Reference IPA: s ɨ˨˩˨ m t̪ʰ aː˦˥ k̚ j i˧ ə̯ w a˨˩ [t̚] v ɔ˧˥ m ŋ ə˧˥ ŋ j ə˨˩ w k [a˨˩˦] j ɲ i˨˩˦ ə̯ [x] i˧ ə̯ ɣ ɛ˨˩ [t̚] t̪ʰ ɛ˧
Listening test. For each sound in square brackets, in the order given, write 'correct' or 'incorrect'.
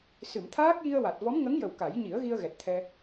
correct, correct, incorrect: ɣ, correct

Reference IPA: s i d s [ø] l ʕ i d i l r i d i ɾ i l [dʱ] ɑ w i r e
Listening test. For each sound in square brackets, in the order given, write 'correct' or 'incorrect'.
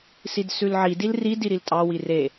incorrect: ʉ, incorrect: tʼ

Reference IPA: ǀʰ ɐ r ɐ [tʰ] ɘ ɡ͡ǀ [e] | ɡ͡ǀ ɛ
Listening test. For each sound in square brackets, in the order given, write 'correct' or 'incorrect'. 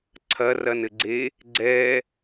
incorrect: n, correct

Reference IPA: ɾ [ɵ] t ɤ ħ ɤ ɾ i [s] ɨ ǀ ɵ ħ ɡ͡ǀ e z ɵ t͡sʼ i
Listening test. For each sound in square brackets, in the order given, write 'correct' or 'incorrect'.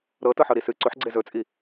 incorrect: ɤ, correct

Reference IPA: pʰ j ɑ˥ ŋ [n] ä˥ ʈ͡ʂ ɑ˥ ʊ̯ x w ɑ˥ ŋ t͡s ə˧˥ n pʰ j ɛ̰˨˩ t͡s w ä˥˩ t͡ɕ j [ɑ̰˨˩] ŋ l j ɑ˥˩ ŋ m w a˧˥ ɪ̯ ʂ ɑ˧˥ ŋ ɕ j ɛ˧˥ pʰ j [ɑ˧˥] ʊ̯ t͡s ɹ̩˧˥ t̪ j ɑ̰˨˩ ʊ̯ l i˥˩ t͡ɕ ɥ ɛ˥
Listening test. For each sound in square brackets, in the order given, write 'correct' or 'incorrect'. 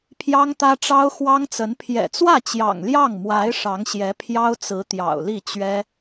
incorrect: t̪, correct, incorrect: ɑ˥

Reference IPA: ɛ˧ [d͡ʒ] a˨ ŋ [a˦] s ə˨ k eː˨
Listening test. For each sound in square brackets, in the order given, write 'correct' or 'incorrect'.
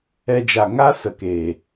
correct, correct

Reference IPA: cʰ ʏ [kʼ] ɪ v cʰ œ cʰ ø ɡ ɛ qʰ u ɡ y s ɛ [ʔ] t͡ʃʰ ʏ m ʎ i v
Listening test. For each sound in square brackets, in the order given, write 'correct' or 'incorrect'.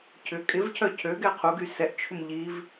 correct, correct

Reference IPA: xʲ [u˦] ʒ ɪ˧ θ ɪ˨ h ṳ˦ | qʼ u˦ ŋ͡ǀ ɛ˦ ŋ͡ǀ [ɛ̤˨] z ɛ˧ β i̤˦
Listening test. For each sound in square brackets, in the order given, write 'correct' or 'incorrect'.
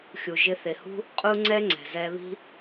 incorrect: u˨, correct

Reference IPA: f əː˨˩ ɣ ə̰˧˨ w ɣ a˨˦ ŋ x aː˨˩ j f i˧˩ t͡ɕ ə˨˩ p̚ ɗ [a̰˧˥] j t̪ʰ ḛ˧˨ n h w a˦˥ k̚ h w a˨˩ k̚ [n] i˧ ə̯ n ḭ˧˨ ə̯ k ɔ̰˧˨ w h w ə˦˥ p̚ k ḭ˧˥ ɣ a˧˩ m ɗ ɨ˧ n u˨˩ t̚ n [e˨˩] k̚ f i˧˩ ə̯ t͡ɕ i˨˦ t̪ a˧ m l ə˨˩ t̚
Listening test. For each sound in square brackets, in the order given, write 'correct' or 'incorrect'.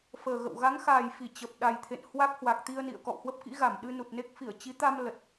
incorrect: a˨˩, incorrect: t̪, incorrect: e˦˥

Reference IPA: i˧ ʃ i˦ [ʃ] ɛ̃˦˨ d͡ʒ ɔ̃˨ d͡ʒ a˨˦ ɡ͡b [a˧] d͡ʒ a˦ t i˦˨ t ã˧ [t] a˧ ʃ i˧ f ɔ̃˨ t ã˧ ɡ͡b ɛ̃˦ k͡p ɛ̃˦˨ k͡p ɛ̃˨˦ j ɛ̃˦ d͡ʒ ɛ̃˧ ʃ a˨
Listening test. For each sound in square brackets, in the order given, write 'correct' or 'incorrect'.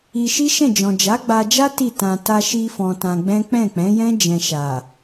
correct, correct, correct

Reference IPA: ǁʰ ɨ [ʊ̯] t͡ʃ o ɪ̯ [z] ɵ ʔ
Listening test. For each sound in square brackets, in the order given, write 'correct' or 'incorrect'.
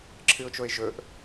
correct, incorrect: ʒ

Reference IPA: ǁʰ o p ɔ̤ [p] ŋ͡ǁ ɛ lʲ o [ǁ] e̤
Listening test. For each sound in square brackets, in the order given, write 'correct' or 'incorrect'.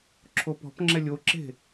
correct, correct

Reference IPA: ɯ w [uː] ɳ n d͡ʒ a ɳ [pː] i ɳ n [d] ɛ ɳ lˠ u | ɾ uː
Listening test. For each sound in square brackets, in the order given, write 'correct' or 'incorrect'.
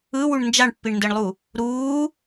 incorrect: u, correct, correct

